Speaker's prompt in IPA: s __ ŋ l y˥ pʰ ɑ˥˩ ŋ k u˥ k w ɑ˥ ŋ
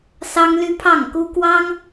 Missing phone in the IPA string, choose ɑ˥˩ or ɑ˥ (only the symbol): ɑ˥